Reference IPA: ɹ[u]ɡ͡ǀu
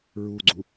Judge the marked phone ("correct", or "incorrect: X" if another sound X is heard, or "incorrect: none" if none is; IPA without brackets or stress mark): correct